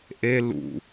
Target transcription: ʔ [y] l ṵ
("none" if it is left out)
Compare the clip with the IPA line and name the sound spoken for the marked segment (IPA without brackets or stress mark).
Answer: e